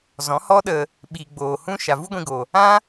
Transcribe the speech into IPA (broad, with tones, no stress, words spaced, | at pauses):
zɔ̃˨˦hɔ˦ɗə˧ | ɓiː˨ ɡ͡boː˨ hũ˦ ʃa˨vu˦ɡʷĩ˧ɡo˨ | ã˦